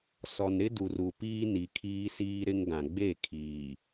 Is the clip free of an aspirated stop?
no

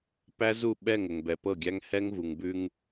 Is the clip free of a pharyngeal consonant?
yes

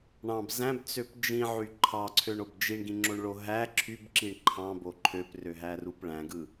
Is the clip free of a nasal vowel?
no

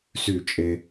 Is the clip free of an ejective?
no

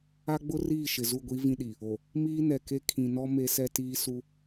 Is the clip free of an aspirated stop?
no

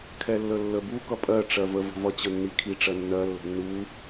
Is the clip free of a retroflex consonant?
no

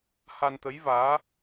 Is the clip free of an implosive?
yes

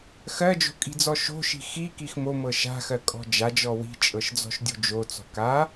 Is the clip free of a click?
yes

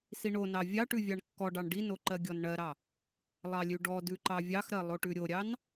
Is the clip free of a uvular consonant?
yes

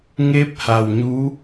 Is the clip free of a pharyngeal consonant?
yes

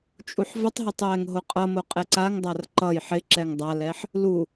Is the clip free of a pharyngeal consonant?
no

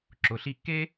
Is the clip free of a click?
no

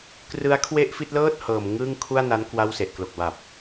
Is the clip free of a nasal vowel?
yes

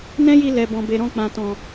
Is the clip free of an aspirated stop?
yes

